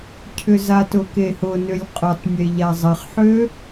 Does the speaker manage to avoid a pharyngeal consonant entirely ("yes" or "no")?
no